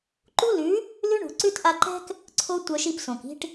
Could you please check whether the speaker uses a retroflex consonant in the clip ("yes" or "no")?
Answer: yes